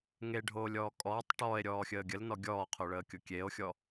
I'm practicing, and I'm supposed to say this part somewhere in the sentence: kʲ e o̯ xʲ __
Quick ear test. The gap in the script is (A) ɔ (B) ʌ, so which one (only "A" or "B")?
A